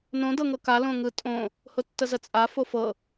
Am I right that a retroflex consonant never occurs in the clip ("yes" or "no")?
yes